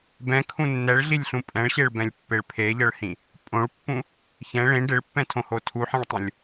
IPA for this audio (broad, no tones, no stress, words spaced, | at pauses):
bɛ̃kʰũ nːɛɭɮilʲɬũ pʼɛ̃ɭɕeɭbɛ̃lʲpːeɭ pʰeʎɤɭhĩ | pʼõɭpːũ | çɛ̃ ɭẽ ɖeɭpːɛ̃tʰõho tʰuħɛ̃ɭtˤũlʲ